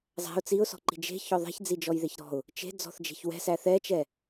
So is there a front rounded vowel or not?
no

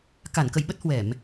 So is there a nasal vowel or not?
no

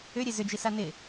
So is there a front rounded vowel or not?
yes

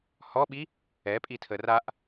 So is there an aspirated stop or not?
yes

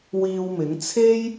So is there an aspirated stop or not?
yes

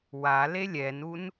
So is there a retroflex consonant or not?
no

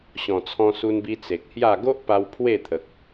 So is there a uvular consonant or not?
no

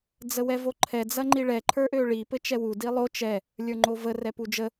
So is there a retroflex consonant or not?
yes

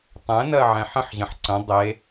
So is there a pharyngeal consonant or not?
yes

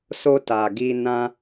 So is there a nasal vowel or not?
yes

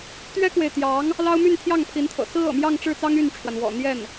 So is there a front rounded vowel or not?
yes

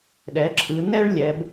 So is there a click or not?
yes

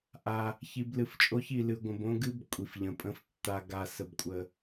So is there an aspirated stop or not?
no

